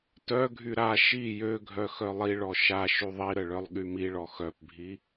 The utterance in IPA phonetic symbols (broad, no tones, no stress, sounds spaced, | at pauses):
t œ ɡʱ y ɾ a ʃ i j ø ɡʱ œ x œ lˠ i ɭ ɔ ʃ a ʃ y ðˤ i ɾ ə ɭ œ lˠ ɠ y m i ɭ ɔ x œ p bʱ i